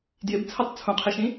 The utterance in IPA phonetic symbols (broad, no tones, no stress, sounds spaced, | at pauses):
d j ɪ b t͡sʰ ɜ tˤ t͡sʰ ũ qʰ i ʃ ĩ